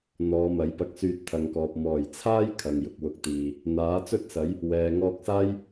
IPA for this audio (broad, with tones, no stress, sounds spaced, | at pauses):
n̪ ɔː˨˧ m ɐ˨˥ j p ɐ˧ k̚ s yː˧ t̚ t̪ʰ ɐ˨ ŋ k ɔː˨ p̚ m ɔː˨˩ j t͡sʰ aː˥ j kʰ ɐ˨ ŋ j ʊ˨ k̚ w ʊ˨ k̚ t̪ iː˨ | n̪ aː˨˥ t͡s ɵ˥ t̚ s ɐ˨˥ j | w ɛː˨ ŋ ɔː˧ k̚ s aː˥ j